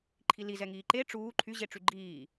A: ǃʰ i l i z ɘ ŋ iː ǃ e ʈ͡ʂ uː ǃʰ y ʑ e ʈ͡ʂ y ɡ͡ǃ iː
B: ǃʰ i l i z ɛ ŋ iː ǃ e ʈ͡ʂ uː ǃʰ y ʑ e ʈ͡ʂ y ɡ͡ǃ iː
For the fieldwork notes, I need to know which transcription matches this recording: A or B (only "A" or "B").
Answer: B